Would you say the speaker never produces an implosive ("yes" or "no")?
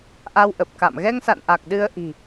no